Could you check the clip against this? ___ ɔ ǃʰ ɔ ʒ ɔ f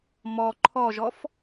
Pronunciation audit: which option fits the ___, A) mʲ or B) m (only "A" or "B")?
B